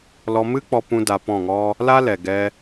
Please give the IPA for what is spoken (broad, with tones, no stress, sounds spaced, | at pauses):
l ɔ˧ m ɨ˦ k͡p ɔ˧ p ũ˧ d a˧ p ɔ̃˦˨ ŋ ɔ˦ | l a˦ l ɛ˨ ɡ ɛ˧